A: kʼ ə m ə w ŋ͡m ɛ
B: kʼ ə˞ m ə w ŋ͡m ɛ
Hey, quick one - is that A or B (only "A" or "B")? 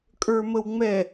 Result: B